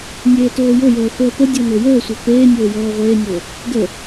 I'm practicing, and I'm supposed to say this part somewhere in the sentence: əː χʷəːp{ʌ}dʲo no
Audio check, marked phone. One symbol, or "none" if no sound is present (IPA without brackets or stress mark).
ə